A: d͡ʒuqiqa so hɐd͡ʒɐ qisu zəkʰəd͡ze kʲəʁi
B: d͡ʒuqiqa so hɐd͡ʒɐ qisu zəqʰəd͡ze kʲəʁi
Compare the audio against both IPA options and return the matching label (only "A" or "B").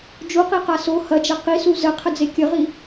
B